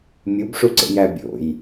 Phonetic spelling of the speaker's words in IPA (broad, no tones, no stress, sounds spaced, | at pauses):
mʲ u b ʂ u ǀ ḛ j æ bʲ o̰ j